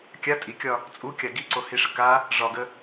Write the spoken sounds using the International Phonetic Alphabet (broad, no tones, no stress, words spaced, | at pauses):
kʲa tʼikʲɒ | t͡sʼukʲa ɡiǀohiʂə ka | ʐɒɡə